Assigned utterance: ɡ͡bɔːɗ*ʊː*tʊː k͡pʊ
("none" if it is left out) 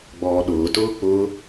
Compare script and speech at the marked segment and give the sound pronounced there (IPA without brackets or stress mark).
ʊː